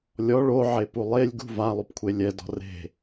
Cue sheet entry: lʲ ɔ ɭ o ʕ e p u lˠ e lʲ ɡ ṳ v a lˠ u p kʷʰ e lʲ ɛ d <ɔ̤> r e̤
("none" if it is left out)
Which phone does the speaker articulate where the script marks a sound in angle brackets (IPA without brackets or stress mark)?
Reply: ɔ̤